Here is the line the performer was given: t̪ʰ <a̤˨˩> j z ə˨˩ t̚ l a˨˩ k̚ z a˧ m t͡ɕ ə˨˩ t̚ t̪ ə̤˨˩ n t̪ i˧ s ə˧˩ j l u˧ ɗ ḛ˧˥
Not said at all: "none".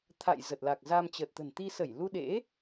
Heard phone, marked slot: a̰˧˨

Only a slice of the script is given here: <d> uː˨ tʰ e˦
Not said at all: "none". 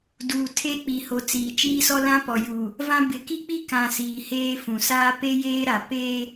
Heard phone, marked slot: d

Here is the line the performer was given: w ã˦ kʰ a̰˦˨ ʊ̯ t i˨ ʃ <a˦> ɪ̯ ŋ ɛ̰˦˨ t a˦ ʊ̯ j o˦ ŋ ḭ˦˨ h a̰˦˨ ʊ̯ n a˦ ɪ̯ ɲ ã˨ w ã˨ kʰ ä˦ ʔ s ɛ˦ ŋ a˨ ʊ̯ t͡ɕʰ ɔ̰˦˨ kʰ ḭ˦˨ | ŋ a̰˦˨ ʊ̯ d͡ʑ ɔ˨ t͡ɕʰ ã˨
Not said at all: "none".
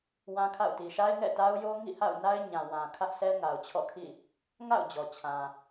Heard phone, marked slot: a˦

